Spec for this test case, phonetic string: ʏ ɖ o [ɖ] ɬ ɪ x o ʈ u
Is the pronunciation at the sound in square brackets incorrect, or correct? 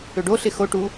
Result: incorrect